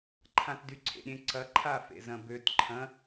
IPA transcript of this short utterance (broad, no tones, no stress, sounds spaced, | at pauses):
ǃʰ ã t d y ǀʰ ḛ ɾʲ ẽ ǀ ɐ ǃʰ a f ḛ z ɐ̃ b ø t ǃʰ ɐ̃